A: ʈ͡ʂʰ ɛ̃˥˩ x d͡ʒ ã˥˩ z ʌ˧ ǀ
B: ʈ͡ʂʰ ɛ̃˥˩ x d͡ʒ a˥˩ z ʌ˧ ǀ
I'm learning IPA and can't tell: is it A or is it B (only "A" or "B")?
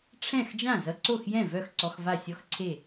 A